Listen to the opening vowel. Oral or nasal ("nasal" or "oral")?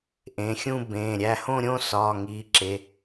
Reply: nasal